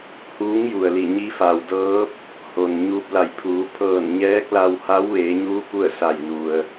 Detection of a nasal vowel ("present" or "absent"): absent